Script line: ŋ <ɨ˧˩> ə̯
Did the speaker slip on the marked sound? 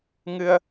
yes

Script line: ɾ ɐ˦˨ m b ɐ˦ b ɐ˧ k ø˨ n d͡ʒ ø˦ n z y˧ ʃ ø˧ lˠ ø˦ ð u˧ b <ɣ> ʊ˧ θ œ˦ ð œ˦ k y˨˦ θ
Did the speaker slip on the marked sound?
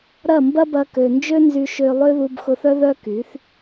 yes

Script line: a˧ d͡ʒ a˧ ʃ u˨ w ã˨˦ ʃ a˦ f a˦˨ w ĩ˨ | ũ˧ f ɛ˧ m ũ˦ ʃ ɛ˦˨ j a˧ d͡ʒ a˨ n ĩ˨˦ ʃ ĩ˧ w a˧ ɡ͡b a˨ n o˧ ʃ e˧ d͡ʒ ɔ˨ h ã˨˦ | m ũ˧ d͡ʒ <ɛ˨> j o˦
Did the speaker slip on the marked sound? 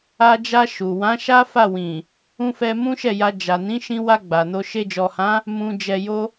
yes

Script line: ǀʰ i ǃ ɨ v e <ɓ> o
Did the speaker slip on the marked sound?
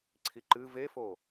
yes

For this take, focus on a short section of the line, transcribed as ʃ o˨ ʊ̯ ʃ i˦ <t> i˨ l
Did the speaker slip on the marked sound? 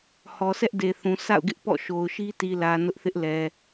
no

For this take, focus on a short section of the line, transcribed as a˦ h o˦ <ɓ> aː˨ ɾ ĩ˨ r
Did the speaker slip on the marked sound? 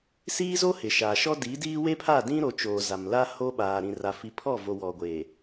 no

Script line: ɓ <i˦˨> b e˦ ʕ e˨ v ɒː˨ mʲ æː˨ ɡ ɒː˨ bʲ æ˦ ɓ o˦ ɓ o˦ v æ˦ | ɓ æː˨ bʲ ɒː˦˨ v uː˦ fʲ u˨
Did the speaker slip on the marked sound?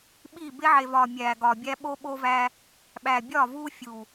yes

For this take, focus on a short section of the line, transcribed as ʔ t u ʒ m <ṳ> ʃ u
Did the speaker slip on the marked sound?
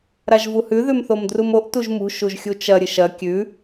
no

